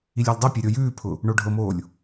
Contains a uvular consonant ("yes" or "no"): no